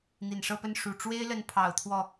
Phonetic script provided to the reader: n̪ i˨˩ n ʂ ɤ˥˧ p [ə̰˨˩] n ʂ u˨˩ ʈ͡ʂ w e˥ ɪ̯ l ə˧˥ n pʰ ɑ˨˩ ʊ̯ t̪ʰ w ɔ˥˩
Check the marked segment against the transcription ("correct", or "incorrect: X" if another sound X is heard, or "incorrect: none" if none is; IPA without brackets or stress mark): incorrect: ə˥˩